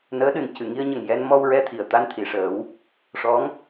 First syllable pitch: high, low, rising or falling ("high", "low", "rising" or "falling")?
rising